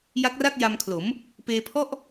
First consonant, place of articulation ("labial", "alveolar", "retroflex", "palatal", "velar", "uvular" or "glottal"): palatal